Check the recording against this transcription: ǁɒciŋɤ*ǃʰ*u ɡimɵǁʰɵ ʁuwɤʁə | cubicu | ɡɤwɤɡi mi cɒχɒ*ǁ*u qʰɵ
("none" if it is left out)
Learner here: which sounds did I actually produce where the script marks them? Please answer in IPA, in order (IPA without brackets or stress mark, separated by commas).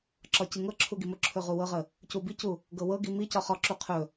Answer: ǁʰ, ǁ